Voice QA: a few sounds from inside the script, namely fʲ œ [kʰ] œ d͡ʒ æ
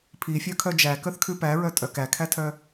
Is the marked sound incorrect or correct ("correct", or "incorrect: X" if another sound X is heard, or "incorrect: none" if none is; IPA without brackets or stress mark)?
correct